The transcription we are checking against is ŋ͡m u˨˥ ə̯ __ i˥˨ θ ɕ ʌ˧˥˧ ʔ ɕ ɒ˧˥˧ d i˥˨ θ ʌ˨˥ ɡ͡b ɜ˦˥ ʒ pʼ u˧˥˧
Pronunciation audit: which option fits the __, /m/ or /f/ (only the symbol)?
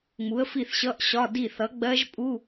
f